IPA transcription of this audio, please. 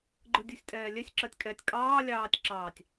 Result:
ɡ͡ǃ ɯ dʲ u sʲ tʼ ɛː lʲ ɛ sʲ ǁ ɜ tʲ kʼ ɛ tʲ kʼ ɑː lʲ ɑː tʲ ǁ ɑː tʲ

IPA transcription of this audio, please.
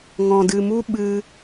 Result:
ŋ ɔ̃˨ d ɨ˨ m u˦ ɓ ɨ˦

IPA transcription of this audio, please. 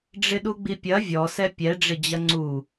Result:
ɖ͡ʐ ɪ ɗ u ɡ͡b i pʲ ɐ vʲ ɔ s ɛ pʲ ɛ ɖ͡ʐ ɪ d͡ʑ ɐ ŋ͡ǀ u

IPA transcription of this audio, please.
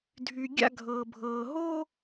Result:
dʱ y˧ ɡʲ a̰˥˧ ɡʱ ɤː˧ bʱ ɤː˧ ɦ oː˥

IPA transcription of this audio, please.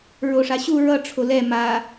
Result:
ɹ o ʂ a ɕ u ɹ ʌ ʈ͡ʂʰ o l ɛ m a

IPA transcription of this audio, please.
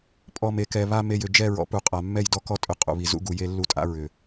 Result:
pʼ ɔ˨ m e˨ k ɛ˨ β a˦ m e˨ j ʏ˨ d͡ʒ ɛ˦˨ ɹ ɔ̰˨ p u˨ qʼ a˨ mː ɛ˦˨ j d ɔ˦ k ɔ˦ tʼ ʏ˨ qʼ ṵ˨ β i˨ z ṵ˦ ɡ u˨ j e˦ lː u˦ tʼ a̰˦ ɹ ʏ˨

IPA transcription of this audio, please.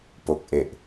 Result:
p o˨˩ k̚ ʔ e˨˩ ʔ

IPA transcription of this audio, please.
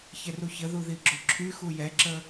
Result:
ç ɛ r u ç ə ð u ð i ɡ͡ǁ o ǁʰ y x u j ɛ ǁ ə

